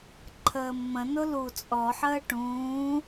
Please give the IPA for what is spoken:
ǃʰ əː mː ə̃ n ʊ l u t͡sʼ ɔ ħ əː ʈ ũː

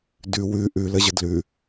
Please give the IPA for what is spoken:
d ʉ w ʉ ʔ ʉ l ə ʑ ə d l ʉ

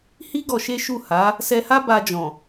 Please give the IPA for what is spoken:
h i˦ ɡ ɔ˧ ʃ e˦ ʃ u˦˨ h a˨˦ | s ɛ˧ h a˦ b a˧ d͡ʒ ɔ̃˨

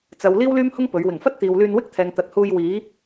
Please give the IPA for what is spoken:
t͡s ɐ˨˧ w l iː˥ w l yː˥ m h ʊ˥ ŋ p ɵ˨˥ ɥ w ɪ˨˩ ŋ f ɐ˥ t̚ t̪ iː˨ w l yː˧ n w ɪ˥ k̚ t̪ʰ ɛː˨ ŋ t̪ ɐ˨ t̚ h uː˧ j w iː˨˥

